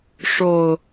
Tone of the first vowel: low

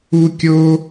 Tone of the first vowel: high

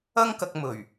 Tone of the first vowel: high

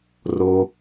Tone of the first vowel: low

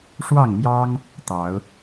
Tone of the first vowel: falling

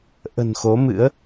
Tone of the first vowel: low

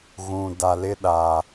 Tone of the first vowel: low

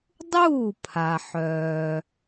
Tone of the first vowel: falling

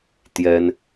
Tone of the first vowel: high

